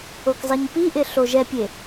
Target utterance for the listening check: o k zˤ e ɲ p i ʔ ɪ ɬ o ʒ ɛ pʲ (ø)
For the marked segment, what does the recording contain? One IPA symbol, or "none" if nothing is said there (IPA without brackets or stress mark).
e